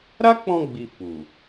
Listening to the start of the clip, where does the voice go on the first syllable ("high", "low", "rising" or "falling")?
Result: high